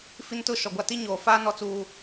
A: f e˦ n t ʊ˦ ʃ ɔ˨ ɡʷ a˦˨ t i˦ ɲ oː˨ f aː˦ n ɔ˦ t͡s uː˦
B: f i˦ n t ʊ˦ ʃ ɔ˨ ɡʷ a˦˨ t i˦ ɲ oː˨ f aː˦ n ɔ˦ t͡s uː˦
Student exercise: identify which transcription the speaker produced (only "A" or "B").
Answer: B